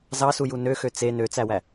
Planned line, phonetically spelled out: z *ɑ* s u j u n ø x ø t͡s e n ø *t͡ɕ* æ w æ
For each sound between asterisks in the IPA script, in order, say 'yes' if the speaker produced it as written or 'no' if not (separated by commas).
yes, no